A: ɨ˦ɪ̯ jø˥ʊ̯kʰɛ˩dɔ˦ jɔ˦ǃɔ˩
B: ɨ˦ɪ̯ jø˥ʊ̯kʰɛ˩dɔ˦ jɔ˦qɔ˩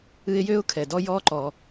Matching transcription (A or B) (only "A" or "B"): A